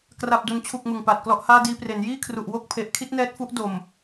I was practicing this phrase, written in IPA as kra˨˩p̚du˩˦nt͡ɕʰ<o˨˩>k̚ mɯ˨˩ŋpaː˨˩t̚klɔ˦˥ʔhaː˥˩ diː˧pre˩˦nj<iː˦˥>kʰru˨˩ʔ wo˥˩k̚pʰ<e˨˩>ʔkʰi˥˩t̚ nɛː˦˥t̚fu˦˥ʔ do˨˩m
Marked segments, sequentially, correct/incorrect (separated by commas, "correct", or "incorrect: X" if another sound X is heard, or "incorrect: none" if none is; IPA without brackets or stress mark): incorrect: u˨˩, incorrect: iː˥˩, correct